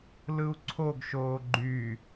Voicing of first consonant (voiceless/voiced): voiced